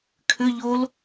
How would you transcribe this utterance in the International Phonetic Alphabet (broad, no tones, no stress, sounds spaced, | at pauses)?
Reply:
kʰ ʏ ʎ o l